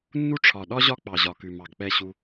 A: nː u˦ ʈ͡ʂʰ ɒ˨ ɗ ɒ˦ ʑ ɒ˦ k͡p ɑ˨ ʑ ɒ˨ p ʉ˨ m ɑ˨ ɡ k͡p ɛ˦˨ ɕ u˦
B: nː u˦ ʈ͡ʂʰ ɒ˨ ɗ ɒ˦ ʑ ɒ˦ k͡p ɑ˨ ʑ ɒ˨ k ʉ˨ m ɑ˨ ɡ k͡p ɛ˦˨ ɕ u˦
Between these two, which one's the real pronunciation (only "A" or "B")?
B